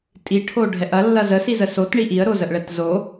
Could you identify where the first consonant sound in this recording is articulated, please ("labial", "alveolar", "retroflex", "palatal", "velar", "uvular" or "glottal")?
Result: alveolar